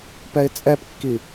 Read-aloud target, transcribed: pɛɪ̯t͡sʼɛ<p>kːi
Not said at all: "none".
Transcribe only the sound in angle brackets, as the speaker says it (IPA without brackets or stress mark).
p